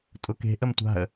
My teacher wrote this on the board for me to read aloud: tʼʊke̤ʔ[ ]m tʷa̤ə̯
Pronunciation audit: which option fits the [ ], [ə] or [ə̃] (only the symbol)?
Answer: ə